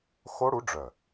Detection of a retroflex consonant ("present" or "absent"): present